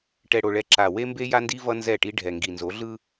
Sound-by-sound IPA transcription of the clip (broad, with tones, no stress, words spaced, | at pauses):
ʈɛ˨ɽo˨ɭɛ˨ ǁa˨ we˦mbe˦ja˦ndi˦ vʌ˦nzɛ˦˨ʈi˦ ɖʱɛ˨ŋɡi˨ nzo˨˦ɮɯ˦